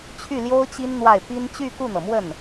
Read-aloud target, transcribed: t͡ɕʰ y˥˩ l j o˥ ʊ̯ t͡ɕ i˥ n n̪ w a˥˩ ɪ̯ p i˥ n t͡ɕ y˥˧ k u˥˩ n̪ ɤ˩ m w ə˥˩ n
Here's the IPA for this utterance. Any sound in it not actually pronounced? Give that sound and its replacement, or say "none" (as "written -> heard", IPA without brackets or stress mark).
none